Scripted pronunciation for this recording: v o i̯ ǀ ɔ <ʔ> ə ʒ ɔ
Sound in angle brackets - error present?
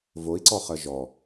yes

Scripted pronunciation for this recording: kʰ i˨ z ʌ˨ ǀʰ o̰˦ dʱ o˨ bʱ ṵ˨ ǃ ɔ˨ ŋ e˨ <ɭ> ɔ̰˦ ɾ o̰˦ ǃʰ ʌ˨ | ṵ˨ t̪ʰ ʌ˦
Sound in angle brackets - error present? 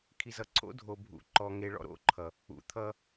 no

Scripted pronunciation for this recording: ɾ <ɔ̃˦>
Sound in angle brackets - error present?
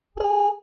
yes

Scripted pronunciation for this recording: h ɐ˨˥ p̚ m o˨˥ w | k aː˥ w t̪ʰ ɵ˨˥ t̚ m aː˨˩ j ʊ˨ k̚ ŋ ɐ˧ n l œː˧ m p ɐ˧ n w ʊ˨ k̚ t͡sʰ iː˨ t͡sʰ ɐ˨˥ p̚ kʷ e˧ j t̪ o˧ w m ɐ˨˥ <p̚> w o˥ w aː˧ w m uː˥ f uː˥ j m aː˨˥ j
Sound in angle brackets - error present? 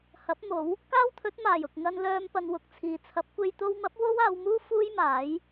no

